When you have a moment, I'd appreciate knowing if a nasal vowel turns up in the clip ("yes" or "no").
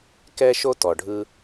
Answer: no